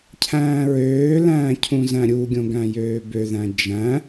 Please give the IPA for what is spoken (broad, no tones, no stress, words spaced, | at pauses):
cʰæ̃ːɹøːlæ̃ː cʰũzæ̃ɾʲuɡʲõ ɡæ̃jøːbøðæ̃ d͡ʒæ̃